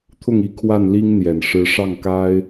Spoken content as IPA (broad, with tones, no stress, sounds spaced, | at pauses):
t̪ʰ ʊ˥˩ ŋ i˧˥ kʰ w a˥˩ n l i˥ ŋ n̪ j ɛ˨˩ n ʂ ɻ̩˧˥ ʂ ɑ˥˩ ŋ k a˥ ɪ̯